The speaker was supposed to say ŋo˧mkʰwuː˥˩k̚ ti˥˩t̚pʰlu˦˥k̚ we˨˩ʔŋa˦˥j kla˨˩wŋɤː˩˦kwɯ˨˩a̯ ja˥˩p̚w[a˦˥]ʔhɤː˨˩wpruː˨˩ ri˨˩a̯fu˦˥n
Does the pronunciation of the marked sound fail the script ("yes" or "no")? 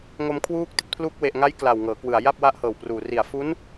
no